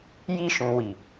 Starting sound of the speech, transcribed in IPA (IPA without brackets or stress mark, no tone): j